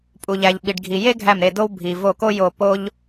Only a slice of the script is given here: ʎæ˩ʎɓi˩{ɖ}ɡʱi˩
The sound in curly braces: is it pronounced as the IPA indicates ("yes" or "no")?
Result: yes